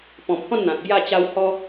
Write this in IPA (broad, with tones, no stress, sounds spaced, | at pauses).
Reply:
p ɔ̃˨˩ m h ɔ̃˥˧ n n̪ ã˨ t̚ b j a˧ t͡ɕ a˧ w h ɔ˦